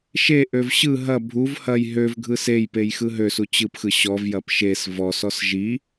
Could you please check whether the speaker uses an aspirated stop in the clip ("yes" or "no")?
no